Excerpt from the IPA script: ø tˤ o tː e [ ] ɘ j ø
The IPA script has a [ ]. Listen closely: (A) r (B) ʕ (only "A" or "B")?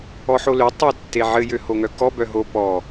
B